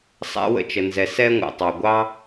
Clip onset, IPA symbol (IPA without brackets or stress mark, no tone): sˤ